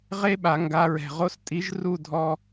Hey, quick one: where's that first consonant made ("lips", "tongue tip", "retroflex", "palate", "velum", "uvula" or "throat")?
uvula